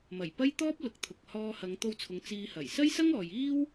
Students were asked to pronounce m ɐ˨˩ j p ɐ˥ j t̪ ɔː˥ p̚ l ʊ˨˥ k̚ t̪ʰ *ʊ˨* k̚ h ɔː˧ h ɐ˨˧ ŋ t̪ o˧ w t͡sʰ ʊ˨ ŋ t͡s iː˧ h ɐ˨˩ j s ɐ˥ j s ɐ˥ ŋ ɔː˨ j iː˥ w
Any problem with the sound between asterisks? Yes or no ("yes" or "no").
no